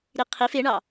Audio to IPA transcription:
ɾ i qʰ i f e ɳ ɑ

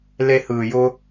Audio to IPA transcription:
l e˧ h ɯː˨ j ʊ˦

